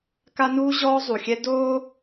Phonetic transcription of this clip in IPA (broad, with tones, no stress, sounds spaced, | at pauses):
k a˦ n uː˦ ʑ ɔː˦ zˤ u˨ xʲ ɛ˦ d oː˦